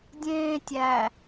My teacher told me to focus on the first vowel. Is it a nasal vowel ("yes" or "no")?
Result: yes